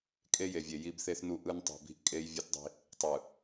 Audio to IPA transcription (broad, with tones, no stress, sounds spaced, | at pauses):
kʼ e˦ j e˨ vʲ e˨ j i˦ b θ e˦ θ n u˦ ʔ ɯ˦ n tˤ ṳ˨ b i̤˦ ʔ kʼ e˦ j vʲ ɯ˦ t dˤ i̤˦ | tˤ ɯ˨